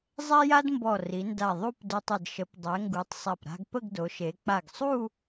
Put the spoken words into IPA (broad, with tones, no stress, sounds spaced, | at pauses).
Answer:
zˤ ɛ˥ j a˥ d m b ɔ˧˩ r i˩˧ n d a˧˩ ðˤ u˥˧ p d œ˧ tˤ ə˧˩ d ʃ ə˩˧ p dˤ ɛ˩˧ ŋ ɡ u˩˧ tˤ sˤ a˧˩ p ɾ a̤˧ ɡ p ə˥˧ ɡ d o˩˧ ʃ e˩˧ k͡p a˧˩ ɡ sˤ u˥˧